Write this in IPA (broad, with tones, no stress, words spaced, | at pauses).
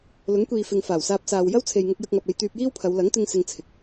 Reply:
lʊ˨˥ŋkʷiː˨fɪ˨ŋfaː˨˩w saː˧p̚saː˨w jɐ˥wt͡sʰe˨jŋʊ˧k̚jɐ˧k̚ ŋɐ˨p̚ e˧jt̪yː˧p̚jiː˥wpʰɐ˨˧w lɐ˨˥ŋt̪ɪ˧ŋ sɪ˧ŋt͡sʰɪ˨k̚